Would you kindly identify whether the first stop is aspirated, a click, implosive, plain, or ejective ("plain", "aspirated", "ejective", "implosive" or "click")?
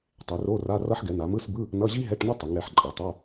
plain